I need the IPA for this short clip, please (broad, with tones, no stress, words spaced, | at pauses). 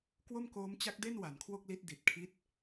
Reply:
kwo˥˩mkoː˦˥mt͡ɕa˦˥k̚de˥˩n wa˩˦nkʰwo˥˩k̚li˦˥t̚ di˨˩t̚kʰi˦˥t̚